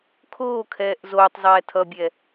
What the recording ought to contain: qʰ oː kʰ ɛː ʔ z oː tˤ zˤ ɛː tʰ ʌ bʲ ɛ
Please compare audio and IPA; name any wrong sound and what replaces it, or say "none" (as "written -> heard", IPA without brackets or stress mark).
qʰ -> kʰ